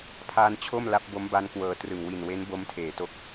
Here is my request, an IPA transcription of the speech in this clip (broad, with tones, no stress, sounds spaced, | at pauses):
pʰ aː˧ n t͡ɕʰ o˥˩ m l a˦˥ p̚ b o˦˥ m b a˦˥ n k w ɤː˧ t r ɯ˨˩ ŋ w i˨˩ n w e˦˥ n b o˦˥ m tʰ eː˨˩ t o˥˩ k̚